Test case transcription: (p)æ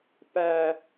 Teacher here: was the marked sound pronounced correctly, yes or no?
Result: yes